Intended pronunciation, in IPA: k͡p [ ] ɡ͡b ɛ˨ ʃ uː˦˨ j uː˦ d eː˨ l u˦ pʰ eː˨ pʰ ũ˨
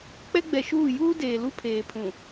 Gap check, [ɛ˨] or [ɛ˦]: ɛ˦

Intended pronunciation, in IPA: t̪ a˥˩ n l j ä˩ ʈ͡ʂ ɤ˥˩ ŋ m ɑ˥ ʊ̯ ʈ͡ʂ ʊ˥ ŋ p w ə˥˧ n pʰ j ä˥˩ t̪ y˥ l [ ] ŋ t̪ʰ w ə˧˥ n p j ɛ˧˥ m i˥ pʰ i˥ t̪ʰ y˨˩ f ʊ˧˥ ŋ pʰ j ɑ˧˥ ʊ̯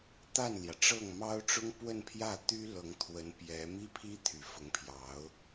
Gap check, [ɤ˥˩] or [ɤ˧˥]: ɤ˧˥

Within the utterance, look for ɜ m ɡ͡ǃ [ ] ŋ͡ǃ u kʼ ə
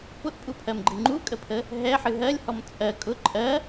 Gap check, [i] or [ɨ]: ɨ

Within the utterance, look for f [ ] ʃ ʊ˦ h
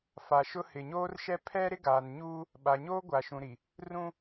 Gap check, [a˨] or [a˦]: a˨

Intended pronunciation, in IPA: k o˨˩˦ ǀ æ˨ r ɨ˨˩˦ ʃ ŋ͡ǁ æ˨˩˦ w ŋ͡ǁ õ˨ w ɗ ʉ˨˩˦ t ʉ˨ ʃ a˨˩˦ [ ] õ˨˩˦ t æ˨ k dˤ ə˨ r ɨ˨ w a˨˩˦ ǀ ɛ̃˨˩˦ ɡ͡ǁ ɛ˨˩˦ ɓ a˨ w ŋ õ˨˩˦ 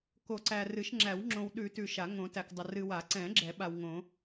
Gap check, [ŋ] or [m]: ŋ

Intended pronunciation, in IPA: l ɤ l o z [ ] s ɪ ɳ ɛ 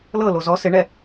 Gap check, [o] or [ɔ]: ɔ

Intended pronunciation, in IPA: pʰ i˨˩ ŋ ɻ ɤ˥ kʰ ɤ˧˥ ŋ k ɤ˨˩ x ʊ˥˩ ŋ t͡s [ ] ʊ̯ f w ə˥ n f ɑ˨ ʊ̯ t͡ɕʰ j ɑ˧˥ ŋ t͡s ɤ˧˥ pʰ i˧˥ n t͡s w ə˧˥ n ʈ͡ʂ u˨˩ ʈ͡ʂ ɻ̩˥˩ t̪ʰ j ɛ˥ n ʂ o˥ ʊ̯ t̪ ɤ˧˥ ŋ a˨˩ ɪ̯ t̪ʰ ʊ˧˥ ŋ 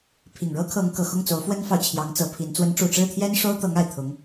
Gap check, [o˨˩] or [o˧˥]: o˧˥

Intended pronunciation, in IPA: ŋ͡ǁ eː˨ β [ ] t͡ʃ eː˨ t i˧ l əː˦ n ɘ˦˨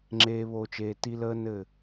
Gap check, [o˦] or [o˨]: o˨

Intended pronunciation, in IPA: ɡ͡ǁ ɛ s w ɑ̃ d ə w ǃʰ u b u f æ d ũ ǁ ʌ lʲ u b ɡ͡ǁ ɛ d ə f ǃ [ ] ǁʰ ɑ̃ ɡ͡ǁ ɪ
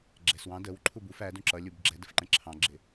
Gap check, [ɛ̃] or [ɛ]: ɛ̃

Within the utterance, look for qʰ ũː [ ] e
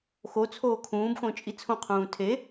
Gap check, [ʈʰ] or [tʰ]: tʰ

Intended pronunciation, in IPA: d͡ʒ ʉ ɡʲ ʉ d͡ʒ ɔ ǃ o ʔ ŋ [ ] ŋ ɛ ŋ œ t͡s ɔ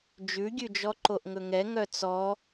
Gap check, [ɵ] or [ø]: ɵ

